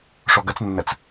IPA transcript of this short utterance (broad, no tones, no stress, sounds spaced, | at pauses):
ʂ ɔ ɡ ɐ t͡s nː ɐ t͡s